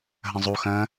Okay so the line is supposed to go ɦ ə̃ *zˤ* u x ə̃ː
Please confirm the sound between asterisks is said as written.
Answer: yes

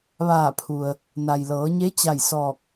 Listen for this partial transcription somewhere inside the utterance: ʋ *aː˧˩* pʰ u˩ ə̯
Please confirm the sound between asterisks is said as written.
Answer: yes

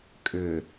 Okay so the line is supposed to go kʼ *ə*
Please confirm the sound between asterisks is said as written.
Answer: no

